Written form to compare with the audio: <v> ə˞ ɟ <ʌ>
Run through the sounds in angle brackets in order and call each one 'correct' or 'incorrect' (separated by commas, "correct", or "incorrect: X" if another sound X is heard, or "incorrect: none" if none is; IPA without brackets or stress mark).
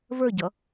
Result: correct, correct